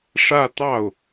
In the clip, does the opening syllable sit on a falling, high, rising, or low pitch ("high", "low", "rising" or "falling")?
falling